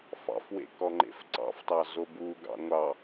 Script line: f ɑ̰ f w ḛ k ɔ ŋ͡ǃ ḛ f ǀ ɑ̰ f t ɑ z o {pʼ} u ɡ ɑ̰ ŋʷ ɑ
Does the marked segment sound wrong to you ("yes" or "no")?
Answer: yes